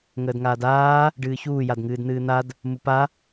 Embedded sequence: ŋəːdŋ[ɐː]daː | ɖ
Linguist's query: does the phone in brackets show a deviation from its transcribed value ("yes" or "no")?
yes